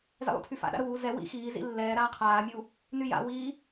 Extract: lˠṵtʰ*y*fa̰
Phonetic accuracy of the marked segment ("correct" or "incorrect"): correct